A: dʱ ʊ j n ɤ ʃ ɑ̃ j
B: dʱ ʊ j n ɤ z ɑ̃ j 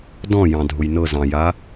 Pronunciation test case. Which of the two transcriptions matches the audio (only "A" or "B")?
B